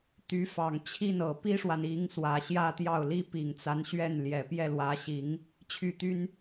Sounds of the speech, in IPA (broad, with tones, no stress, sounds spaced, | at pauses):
t̪ y˧˥ f ɑ˨˩ ŋ t͡ɕʰ i˥˩ n ɤ˨˩ p i˥ ʂ w a˨ n i˧˥ ŋ s w ä˨˩ ɕ j ä˥˧ t̪ j ɑ˥˩ ʊ̯ l i˥ p i˨˩ ŋ t͡s a˧˥ n ɕ ɥ ɛ˥˩ n l j ɛ˨˩ p j ɛ˥˩ l w ä˧˥ ɕ i˧˥ ŋ | t͡ɕʰ y˥˩ t̪ y˥ n